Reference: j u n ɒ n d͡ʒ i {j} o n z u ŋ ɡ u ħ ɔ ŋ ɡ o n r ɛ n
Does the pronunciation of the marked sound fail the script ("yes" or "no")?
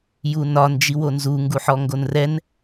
yes